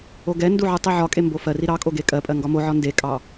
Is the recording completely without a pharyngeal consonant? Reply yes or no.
no